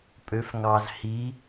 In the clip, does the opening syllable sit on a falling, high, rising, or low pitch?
rising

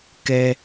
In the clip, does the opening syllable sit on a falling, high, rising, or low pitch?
low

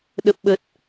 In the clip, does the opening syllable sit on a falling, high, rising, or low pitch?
low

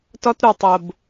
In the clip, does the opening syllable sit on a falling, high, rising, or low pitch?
high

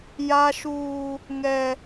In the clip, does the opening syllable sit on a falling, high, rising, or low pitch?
high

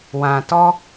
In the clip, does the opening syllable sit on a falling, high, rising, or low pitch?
low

